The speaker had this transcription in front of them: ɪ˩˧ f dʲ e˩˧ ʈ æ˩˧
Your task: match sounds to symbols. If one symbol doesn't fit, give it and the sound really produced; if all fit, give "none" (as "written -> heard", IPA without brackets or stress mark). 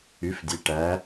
ɪ˩˧ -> y˩˧